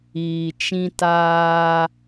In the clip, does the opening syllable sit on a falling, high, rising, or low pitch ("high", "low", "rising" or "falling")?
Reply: low